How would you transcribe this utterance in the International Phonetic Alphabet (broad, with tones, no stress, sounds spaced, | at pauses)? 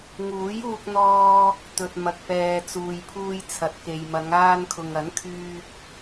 ŋ uː˨˥ j uː˧ k̚ n̪ ɔː˧ | t̪ ɵ˨ t̚ m ɐ˨ k̚ p ɛː˨ t͡s uː˨ j pʰ uː˧ j t͡sʰ ɐ˨ t̚ k e˨ j m ɐ˨˧ ŋ aː˧ n kʰ ʊ˨ ŋ ɐ˨˥ n kʰ yː˧ k̚